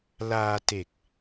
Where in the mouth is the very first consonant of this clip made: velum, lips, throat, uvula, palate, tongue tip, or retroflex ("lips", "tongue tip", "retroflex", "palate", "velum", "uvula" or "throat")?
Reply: tongue tip